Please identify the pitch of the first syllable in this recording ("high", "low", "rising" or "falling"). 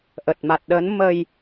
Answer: low